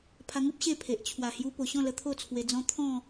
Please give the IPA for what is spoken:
pʰ a˧ ŋ u˦ p̚ ɕ e˥˧ pʰ e˨ ʔ t͡ɕʰ w a˨˩ h j u˧ p o˨˩ ɕ ɔ̃˥˧ l ə˧ t̪ʰ o˥˧ t͡sʰ w e˧ d͡z ɔ̃˦ t̪ʰ ɔ̃˥˧

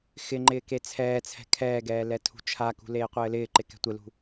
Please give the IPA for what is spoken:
x ɪ ŋ͡ǃ ɪː k e t͡sʰ ɛː t͡sʰ ɛ̤ kʰ ɛː ɡ ɛː l ɛ tʰ ṳ t͡ʃʰ a k ṳ l eː qʷ ɘː l ɪː ǃ ɪ k ɛ̤ tʷ ɪ l ṳ

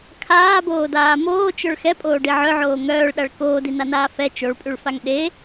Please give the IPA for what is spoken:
kʰ aː b oː d aː m oː t͡ʃ œ ɭ x ɛ pʼ oː ɖ i ʕ œ ʕ oː ŋ œː ɭ ɗ a ɭ k oː d i n a n aː f ɛ t͡ʃ o ɭ pʼ y ɭ f a ŋ ɗ e

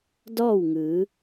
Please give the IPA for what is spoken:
d ɔː˥˨ w ŋ ɯː˩˧

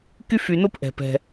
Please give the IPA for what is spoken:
k y˦ f y˨ n o˦ p ʔ ɛ̤˩ p ɛ̤˩

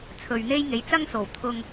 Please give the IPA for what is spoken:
t͡sʰ ɵ˨ ɥ n̪ e˥ j ŋ e˨˥ j t͡s ɐ˥ ŋ s o˨˩ w t̪ʰ ʊ˧ ŋ

